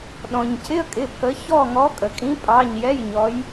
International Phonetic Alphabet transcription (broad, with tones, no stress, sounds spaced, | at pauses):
ɗ ɔ̃˩ ɲ cʰ ɪ˧˥˧ ə̯ kʼ ɪ˩˧˩ pʰ ə˨˦ ç ɔ˦˨ ŋ ɔ˨˦ kʼ ə˩ kʼ ĩ˨˦ pʼ ɑ˩˧˩ ɲ j ɛ˧˥˧ j ɲ ɔ˨˦ j